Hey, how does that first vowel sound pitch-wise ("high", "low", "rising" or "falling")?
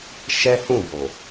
high